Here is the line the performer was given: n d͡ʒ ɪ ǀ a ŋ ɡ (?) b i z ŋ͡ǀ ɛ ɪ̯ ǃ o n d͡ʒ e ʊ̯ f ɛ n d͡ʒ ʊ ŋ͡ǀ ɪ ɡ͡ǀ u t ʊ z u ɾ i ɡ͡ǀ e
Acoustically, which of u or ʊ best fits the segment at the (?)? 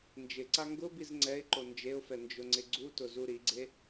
ʊ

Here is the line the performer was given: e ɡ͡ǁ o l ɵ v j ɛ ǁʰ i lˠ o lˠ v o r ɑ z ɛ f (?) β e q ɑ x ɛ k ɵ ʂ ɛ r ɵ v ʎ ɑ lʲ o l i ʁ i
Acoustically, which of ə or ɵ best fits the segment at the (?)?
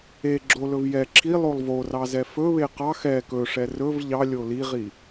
ɵ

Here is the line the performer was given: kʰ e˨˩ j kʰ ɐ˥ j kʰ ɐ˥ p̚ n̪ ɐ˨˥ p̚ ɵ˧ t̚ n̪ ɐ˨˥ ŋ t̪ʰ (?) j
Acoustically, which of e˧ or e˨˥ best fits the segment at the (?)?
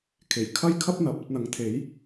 e˨˥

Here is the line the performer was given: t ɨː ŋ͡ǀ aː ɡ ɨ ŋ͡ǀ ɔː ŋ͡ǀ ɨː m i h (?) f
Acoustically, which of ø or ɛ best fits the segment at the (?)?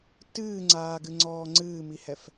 ɛ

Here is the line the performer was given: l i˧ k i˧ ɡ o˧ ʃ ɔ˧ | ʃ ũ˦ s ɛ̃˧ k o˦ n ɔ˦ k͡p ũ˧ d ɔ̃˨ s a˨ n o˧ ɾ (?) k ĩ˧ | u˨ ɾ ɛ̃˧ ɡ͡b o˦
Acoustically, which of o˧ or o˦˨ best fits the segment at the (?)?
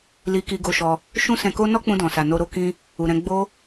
o˧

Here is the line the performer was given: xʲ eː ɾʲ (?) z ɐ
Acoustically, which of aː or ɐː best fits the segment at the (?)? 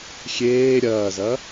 ɐː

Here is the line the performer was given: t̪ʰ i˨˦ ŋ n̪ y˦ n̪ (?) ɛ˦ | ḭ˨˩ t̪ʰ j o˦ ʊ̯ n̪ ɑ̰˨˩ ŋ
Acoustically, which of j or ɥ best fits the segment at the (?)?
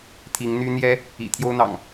j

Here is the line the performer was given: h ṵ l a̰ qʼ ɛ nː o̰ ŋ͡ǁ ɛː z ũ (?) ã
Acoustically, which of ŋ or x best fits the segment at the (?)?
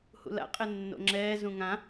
ŋ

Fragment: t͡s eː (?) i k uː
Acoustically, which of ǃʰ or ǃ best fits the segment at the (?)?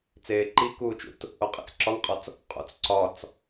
ǃ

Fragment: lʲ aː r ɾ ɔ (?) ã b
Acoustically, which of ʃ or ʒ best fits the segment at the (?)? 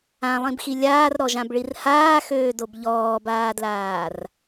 ʒ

